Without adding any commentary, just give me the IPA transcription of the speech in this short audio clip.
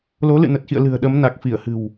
l o˨˦ l ɨ̰˧˨ n ə˨˩ t̚ x ḭ˧˨ ə̯ l ɨ̤˨˩ ə̯ ɗ ə˨˦ m n a˨˩ k̚ f i˧˩ ə̯ h ɨ̤˨˩ w

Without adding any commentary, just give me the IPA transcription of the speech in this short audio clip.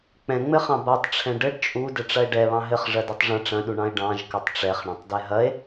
k͡p ɛ̃ ŋ͡m ɘ χ ɑ̃ b a tˤ ʈ͡ʂʰ ɛ̃ ɖ ɘ ɖ t͡ʃʼ u d ɘ ʈ͡ʂ ɐ e̯ ɖ ɛ β ɑ̃ ɦ ɘ χ ʐ ɐ d ɛ tˤ ʐ ɐ̃ ʈ͡ʂ ɐ̃ ɗ u ɳ ɑ̃ e̯ ɖ ɑ̃ ʒ k ɘ tˤ ʈ͡ʂ ɛ χ ɳ ɐ̃ tˤ d ɛ ɦ ɐ e̯

